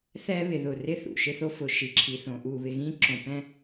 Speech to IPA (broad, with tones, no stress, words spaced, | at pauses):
θɛ˦βɪ˨ðʊ˨rɪ˦ θṵ˨ʃɪ˦θo˦ fʊ˨ʃi˨ǁʰi˨ θõ˨ʔu˦˨βɪ˦ ɣĩ˦ǁõ˨pɛ̃˦